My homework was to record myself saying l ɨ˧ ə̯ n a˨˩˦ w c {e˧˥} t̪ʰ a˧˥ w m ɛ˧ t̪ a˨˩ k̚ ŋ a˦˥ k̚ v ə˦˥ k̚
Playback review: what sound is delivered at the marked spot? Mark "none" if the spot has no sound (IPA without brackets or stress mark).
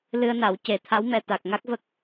e˨˩˦